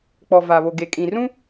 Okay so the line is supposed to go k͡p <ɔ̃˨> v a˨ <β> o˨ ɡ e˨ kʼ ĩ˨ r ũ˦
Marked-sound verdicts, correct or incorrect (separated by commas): incorrect, correct